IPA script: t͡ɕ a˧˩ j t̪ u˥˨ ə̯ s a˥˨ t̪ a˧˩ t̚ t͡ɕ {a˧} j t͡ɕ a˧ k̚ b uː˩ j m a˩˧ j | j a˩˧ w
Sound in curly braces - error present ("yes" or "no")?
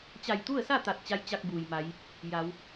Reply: no